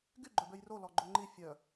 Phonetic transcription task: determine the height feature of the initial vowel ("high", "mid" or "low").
high